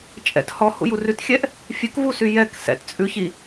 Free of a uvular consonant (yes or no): yes